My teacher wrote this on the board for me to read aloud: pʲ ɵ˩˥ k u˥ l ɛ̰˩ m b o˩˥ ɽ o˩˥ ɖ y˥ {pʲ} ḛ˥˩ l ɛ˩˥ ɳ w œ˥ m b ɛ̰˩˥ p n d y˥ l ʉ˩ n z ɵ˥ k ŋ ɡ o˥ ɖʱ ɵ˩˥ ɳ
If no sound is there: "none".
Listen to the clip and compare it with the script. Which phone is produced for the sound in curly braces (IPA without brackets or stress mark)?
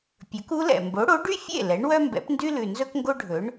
fʲ